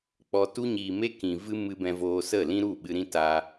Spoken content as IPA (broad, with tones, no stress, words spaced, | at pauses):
k͡pɔ˨tu˧ɲiː˨me˧ kĩ˨vɨ˧ mɨ˧bɛ̃˧voː˧sə˦˨ lĩ˦ɾu˦˨ɓɨ˧ɾĩ˦ ta˧